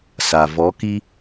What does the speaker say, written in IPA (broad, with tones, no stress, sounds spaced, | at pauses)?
s a˨ v ɔ˨˦ k i˦